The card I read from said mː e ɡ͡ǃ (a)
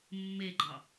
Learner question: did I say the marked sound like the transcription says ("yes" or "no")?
no